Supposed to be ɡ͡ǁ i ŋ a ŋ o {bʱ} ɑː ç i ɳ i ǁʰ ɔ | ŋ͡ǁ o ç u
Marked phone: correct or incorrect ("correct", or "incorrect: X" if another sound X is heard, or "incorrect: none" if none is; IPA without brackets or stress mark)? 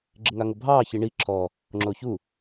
correct